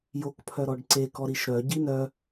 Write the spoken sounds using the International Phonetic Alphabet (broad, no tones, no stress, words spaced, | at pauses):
jokpʰœ ɾɔɖǀekɔ ɾiʃɾœ ɟinœ